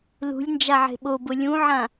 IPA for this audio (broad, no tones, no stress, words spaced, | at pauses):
lṳlʲ nd͡ʒaʕe̤ɓobʊ lʲũʕã